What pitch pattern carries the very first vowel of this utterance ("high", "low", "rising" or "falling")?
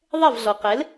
falling